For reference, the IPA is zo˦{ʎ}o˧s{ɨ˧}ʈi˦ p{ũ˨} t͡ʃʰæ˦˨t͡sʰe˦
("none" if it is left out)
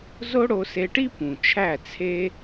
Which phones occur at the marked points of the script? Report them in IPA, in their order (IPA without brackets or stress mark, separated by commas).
ɽ, e˧, ũ˨